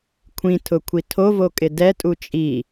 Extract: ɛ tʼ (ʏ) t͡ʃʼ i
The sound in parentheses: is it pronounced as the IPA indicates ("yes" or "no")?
no